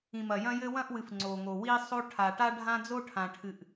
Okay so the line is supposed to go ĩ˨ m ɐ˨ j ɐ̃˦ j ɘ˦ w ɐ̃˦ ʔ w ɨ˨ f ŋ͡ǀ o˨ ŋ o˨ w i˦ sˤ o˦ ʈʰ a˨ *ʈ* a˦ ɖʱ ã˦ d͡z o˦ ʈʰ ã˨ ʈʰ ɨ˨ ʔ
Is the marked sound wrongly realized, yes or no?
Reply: no